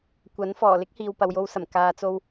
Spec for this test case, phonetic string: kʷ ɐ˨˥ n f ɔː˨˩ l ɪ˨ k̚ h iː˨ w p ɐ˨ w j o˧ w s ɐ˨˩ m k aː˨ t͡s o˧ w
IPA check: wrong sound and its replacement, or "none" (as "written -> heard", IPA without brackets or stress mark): ɪ˨ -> ɪ˥